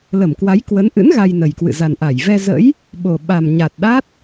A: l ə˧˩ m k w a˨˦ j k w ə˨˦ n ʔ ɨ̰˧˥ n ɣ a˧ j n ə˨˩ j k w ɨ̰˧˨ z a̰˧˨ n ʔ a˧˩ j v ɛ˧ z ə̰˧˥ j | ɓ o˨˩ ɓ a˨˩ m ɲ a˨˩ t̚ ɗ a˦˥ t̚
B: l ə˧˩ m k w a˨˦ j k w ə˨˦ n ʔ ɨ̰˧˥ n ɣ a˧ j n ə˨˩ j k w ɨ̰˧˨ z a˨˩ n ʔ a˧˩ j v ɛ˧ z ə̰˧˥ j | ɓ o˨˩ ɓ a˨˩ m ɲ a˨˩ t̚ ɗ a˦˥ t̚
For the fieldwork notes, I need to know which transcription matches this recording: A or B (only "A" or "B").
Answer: B